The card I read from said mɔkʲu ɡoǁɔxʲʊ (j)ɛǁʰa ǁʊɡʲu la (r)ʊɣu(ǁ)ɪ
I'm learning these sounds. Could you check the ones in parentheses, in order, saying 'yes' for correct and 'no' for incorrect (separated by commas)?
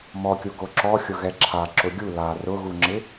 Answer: no, yes, no